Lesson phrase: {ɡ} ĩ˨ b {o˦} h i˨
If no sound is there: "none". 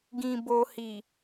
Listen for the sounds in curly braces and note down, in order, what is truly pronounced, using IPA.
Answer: ɡ, o˨

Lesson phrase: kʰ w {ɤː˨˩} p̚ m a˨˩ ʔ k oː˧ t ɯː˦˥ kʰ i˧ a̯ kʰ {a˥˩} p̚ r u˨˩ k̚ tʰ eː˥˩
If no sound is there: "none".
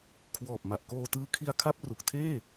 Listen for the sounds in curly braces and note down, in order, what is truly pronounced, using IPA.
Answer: ɔː˨˩, a˥˩

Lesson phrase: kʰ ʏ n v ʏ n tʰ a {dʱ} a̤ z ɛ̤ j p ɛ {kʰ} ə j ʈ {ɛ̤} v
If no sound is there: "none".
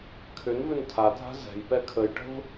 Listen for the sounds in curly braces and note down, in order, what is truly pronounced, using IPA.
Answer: dʱ, kʰ, ə̤

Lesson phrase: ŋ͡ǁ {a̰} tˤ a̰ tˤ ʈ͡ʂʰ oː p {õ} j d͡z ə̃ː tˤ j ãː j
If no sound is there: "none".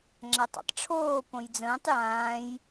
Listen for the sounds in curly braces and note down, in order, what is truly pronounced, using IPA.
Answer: a, õ

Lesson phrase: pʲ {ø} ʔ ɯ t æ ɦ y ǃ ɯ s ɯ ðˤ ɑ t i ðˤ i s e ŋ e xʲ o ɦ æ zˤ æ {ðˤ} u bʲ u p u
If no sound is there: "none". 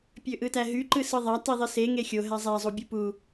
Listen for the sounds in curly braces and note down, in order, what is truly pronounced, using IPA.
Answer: ø, zˤ

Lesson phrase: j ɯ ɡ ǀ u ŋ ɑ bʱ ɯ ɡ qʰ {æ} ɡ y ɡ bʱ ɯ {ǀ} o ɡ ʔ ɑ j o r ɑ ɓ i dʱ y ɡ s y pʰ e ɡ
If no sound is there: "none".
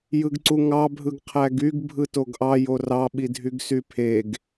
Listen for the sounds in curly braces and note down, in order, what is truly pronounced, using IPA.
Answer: æ, t

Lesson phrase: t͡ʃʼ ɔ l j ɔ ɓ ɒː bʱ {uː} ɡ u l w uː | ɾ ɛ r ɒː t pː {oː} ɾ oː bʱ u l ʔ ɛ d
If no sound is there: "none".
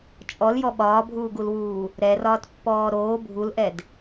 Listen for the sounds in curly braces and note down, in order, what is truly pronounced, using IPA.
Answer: uː, ɔː

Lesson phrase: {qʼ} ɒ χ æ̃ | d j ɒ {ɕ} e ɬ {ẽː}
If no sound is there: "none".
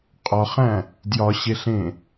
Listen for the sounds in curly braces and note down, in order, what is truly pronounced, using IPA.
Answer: qʼ, ɕ, ẽ

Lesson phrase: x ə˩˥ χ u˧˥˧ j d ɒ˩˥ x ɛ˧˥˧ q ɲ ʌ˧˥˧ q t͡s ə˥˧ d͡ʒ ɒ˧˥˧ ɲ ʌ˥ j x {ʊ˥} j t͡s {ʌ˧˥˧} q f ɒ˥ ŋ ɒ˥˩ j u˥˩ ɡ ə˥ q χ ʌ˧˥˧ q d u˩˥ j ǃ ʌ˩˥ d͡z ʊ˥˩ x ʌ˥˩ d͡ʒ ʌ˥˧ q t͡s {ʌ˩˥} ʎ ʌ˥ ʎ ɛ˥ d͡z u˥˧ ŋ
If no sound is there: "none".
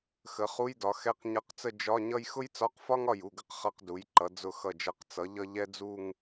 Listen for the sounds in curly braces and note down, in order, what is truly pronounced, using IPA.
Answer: ʊ˥, ɒ˧˥˧, ʌ˩˥

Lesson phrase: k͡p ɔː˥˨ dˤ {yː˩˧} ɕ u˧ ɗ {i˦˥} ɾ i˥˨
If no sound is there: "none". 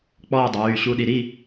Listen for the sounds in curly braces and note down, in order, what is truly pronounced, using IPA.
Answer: yː˩˧˩, i˩˧

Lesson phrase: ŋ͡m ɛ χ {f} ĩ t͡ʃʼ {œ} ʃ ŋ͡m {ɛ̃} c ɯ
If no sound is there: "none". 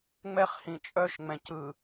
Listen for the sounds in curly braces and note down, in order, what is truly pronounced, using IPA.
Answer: h, œ, ɛ̃

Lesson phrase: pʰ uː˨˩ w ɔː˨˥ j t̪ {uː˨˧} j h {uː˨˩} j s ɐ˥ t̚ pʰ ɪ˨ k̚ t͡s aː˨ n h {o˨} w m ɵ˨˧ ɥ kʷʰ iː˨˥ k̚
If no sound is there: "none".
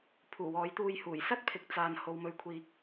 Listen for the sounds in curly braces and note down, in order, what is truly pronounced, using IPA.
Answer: uː˧, uː˨˩, o˨

